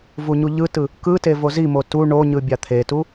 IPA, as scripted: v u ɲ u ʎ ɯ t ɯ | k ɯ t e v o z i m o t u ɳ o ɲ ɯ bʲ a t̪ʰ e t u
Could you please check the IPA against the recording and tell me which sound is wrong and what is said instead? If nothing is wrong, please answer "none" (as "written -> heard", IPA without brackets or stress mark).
none